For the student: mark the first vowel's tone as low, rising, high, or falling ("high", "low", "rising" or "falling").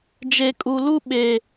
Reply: low